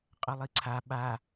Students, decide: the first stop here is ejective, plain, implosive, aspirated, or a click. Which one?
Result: ejective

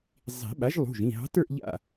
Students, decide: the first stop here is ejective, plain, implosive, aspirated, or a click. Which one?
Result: implosive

